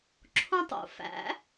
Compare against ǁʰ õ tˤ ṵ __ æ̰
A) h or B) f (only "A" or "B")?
B